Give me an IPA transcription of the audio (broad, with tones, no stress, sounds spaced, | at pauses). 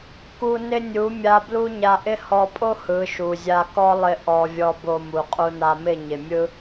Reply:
k u˧ n ɪ˦ nʲ u˨˦ mʲ a˦ b l u˦ ɲ a˧ ʔ ɪ˦ h ɔ˧ pʼ o˦ h ɯ˨˦ ʃ u˨ zʲ a˧ k ɔ˦ lˠ ɪ˧ ʔ ɔ˧ vʲ ɔ˧ b o˧ m u˨ qʼ u˧ n a˧ m ɪ˦˨ ɲ ɪ˨ mʲ ɯ˦